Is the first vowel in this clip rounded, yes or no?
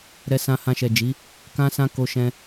no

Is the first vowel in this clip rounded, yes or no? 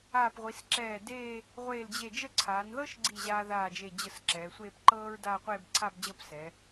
no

